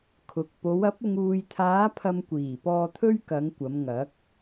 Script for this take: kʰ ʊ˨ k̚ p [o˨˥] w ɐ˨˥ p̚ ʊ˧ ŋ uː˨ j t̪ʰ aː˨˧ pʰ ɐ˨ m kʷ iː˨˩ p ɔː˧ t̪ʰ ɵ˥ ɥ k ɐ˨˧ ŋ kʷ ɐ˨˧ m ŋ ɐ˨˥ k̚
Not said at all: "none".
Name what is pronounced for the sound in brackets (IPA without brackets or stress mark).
o˨˧